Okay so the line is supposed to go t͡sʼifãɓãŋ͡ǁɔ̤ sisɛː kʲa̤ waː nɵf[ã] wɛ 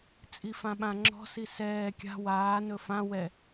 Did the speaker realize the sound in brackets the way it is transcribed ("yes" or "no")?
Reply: yes